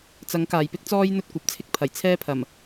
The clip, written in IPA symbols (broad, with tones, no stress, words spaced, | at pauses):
t͡sɐ˨˥ŋ kaː˨jpɪ˥k̚t͡sɔː˥j n̪ɵ˥t̚kʷɐ˨˥p̚t͡sʰɪ˥k̚ pʰɐ˨˩jt͡sʰɛː˥ pʰɐ˨˩m